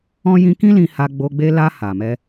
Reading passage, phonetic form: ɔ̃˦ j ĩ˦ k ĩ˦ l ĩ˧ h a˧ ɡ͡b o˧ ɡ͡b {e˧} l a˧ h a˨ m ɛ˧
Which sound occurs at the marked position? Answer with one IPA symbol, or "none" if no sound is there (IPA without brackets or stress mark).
e˧